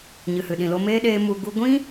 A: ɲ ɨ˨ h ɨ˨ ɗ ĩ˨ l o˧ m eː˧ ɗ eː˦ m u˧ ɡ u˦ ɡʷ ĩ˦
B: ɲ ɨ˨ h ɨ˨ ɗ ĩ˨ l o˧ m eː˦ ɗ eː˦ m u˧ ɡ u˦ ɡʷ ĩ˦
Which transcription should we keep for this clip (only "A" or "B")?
B